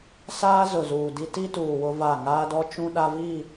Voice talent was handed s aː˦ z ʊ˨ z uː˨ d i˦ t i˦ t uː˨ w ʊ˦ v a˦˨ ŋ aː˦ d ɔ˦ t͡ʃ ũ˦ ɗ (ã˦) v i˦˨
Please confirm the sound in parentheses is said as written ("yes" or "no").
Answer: no